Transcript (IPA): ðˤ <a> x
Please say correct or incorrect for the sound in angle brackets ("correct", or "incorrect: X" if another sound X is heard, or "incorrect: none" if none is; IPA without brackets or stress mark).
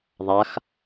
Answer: correct